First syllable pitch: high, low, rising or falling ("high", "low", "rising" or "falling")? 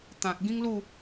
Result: low